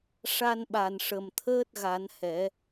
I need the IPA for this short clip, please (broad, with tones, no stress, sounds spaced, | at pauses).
ʂ a˧ n ɓ a˨˩ n ʂ ə˨˩ m t̪ʰ əː˦˥ t̚ ɣ a˨˩˦ n h ɛ˨˩˦